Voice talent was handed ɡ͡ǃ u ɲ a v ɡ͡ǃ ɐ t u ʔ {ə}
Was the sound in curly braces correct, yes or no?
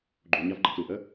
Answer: yes